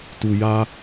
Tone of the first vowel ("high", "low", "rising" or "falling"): low